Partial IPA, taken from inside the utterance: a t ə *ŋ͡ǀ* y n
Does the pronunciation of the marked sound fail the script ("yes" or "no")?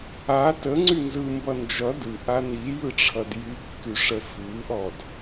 no